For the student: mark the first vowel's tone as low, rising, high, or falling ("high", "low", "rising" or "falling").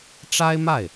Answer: high